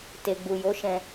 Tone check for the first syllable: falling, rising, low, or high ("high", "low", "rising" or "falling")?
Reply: low